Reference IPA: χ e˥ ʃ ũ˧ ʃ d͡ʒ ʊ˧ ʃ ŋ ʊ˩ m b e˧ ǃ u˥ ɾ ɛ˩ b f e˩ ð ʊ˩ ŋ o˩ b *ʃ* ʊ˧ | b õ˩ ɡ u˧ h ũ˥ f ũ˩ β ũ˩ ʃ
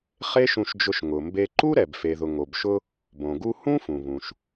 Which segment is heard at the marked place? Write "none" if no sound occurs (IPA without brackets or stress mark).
ʃ